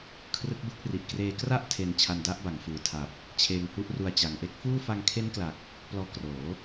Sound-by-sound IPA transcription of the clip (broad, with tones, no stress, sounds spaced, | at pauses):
kʰ r ɯ˦˥ k̚ b ɯ˥˩ k̚ r i˨˩ ʔ k r eː˧ k r a˥˩ ʔ tʰ e˧ n t͡ɕʰ a˧ n d a˦˥ ʔ b a˩˦ ŋ f ɯː˩˦ tʰ a˨˩ p̚ | t͡ɕʰ eː˧ ŋ h u˦˥ ʔ r u˧ a̯ t͡ɕ a˨˩ ŋ ʔ e˦˥ k̚ f uː˥˩ f a˧ ŋ kʰ e˦˥ n k l a˨˩ k̚ | p l ɔː˧ k r oː˩˦